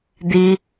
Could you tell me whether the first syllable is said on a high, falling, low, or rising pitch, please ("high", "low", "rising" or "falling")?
high